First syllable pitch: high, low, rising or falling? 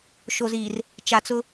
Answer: low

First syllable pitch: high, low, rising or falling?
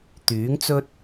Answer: rising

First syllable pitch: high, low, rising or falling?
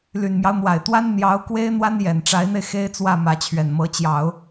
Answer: low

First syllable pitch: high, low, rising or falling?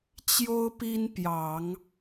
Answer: high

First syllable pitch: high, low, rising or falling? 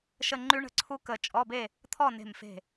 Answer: falling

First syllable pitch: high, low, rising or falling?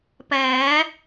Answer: rising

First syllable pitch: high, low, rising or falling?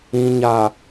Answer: low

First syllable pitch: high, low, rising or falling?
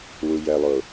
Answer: low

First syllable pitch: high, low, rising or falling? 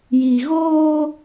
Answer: low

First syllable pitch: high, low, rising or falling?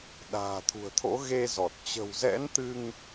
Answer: low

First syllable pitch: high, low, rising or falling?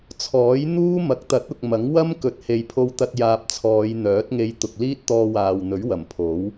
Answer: rising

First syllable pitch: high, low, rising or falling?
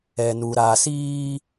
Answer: low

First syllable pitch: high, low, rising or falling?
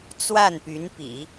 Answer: falling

